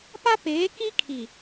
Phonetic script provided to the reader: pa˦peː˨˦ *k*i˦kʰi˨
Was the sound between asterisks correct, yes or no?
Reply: yes